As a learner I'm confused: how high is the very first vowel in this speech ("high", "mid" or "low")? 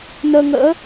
mid